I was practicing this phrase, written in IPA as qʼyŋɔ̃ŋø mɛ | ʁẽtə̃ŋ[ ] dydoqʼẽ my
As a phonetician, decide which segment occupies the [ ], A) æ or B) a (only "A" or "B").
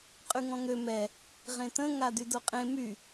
B